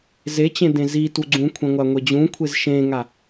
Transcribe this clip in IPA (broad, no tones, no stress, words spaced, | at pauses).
zet͡ɕẽ dẽzitu ɡ͡ǀũkʷʰẽ ŋʷaŋʷed͡ʑũkʷʰez ʃẽŋa